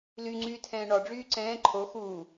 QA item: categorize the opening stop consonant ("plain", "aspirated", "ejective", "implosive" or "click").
click